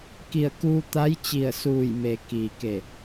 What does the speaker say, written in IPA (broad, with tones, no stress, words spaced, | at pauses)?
ki˧˩ə̯kuː˧t̪a˧˥j t͡ɕi˧˩ə̯suː˧˩jme˩ kiː˩ke˧˩